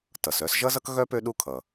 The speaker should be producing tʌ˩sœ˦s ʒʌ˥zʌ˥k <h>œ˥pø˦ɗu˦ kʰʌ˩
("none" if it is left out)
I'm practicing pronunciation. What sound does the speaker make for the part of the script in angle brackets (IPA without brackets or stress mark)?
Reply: ɣ